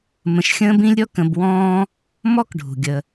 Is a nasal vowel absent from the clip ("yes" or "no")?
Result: no